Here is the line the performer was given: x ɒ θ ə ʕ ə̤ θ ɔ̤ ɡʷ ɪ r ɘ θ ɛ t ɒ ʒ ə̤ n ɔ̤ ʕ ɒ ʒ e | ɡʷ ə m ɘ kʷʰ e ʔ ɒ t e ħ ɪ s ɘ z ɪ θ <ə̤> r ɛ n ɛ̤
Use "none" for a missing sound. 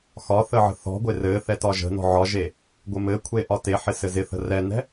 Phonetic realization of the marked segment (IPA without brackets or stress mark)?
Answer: ə̤